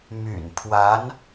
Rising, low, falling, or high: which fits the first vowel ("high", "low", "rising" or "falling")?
low